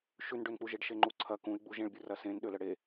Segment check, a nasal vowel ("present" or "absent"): present